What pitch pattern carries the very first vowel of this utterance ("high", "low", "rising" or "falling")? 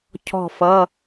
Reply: falling